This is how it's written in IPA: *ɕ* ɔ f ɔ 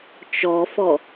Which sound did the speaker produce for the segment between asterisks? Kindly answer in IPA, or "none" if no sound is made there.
t͡ʃ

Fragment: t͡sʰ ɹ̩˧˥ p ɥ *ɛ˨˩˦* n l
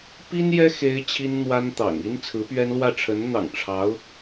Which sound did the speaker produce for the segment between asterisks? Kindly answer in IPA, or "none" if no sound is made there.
ɛ˥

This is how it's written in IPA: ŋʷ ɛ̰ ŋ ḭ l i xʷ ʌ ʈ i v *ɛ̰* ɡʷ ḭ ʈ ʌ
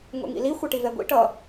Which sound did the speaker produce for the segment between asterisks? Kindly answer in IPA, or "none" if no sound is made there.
ɛ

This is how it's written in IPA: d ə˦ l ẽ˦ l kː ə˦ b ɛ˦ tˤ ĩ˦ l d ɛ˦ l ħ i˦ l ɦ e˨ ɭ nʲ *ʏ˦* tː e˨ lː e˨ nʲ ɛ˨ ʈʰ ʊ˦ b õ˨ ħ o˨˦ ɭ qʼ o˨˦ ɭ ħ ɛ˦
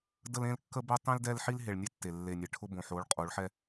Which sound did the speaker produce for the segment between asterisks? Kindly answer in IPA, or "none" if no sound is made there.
ɛ˦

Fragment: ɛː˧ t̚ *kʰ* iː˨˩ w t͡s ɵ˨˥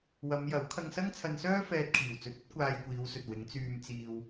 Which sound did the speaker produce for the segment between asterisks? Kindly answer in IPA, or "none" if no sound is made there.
kʰ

